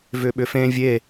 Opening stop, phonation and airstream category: implosive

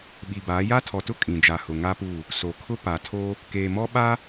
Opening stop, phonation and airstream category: implosive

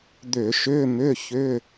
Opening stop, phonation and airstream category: plain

